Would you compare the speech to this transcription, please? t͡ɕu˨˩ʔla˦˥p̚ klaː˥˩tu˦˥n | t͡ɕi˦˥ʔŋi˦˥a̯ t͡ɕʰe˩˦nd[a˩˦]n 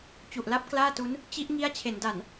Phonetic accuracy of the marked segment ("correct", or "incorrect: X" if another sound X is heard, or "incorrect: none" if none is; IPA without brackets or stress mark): incorrect: a˨˩